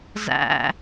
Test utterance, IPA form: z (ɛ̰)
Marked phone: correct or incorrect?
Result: incorrect